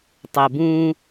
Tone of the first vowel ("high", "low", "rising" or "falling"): low